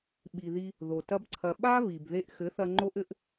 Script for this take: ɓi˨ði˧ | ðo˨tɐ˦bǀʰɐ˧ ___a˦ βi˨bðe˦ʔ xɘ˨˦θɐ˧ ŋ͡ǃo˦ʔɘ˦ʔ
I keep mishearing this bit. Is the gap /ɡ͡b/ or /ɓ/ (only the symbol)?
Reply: ɓ